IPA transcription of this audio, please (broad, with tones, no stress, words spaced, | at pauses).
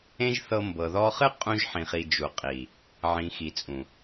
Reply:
ẽ˦ʒθɤ˧mbɤ˨ ðɔ˧χɨ˦ qʼũ˧ʒ ħĩ˨χi˨ d͡ʒu˨qʼi˨ | ʕĩ˨xi˨t͡sʼũ˨